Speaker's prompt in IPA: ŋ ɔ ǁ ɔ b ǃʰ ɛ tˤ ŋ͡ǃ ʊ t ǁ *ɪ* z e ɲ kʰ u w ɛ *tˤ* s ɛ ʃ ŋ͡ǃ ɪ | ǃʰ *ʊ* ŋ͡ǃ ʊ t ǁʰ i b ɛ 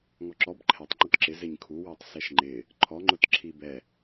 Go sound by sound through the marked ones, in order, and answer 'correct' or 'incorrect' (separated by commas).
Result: correct, correct, incorrect